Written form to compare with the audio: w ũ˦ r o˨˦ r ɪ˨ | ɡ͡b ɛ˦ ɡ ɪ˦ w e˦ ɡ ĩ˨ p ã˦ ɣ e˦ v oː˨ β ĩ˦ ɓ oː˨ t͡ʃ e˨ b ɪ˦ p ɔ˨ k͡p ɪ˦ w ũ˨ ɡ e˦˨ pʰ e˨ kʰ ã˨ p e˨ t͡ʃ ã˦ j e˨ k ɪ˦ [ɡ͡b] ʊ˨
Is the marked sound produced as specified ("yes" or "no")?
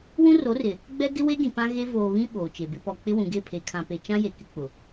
no